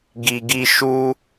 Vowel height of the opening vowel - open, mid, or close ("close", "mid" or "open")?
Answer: close